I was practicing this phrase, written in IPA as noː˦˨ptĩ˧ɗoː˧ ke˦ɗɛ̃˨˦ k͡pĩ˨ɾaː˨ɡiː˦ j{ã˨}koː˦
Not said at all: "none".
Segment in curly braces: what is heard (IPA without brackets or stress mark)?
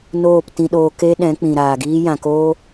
ã˨